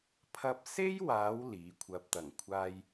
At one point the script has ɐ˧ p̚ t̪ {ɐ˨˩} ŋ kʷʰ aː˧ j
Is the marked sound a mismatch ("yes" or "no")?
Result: no